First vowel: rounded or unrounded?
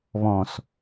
rounded